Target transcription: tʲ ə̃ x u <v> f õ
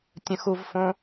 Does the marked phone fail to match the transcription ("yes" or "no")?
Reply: no